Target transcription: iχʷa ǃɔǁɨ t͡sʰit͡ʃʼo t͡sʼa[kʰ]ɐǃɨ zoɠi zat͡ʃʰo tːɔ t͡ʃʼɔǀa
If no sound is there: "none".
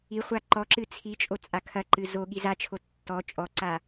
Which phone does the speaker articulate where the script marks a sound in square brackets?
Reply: kʰ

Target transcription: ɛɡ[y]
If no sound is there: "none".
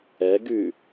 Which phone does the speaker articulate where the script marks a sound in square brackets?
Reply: y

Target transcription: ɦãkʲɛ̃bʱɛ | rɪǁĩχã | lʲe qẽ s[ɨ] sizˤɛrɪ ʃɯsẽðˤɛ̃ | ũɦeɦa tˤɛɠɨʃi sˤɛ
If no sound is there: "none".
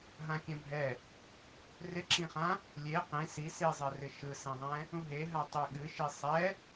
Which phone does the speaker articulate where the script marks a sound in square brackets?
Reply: i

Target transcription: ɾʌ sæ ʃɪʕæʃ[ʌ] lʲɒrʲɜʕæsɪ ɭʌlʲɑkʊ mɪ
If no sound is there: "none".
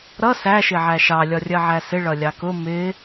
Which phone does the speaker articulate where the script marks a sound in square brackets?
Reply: ɑ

